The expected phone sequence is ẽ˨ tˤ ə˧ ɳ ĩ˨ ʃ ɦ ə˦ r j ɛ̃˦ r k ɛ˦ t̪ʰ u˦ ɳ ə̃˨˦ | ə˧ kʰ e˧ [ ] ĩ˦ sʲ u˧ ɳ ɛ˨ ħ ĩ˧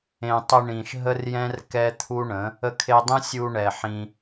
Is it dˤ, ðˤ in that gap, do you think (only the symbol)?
dˤ